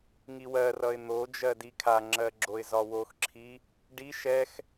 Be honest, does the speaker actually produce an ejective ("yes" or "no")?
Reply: no